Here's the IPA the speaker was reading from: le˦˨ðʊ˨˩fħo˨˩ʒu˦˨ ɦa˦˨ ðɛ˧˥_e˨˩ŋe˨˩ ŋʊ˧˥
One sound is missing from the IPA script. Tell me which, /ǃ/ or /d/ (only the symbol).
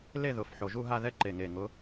ǃ